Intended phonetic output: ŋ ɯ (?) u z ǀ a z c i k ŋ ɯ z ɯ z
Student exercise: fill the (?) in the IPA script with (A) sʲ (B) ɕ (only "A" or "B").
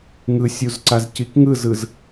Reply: A